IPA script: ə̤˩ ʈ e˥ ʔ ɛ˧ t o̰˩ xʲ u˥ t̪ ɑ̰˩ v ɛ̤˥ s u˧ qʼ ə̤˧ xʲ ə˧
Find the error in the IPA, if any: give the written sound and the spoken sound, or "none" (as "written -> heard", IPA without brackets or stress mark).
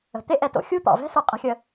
ʈ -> t̪